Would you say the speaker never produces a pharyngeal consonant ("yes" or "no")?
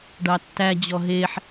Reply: no